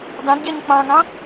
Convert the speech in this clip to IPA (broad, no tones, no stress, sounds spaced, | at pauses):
d ɑ̃ d ɟ ɛ ɲ k͡p ɑ̃ ŋ ɑ̃